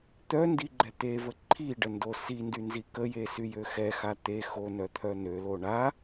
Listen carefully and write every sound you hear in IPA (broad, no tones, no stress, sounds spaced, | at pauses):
t̪ œ n d i ɡ͡ǃ ɛ t̪ e v ə ǃʰ i ɖ ə n d o s i n d y n z i k ə j e s y j ø x ɛ x a t̪ e x o n œ t̪ʰ œ n ø l o ɳ a